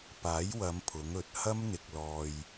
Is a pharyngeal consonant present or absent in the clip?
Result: absent